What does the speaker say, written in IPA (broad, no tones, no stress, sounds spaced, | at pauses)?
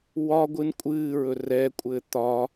w ɒ ɡʷ ɨ n kʷʼ ɨː ɹ ɵ r ɛ kʷʼ ɘː t̪ ɒː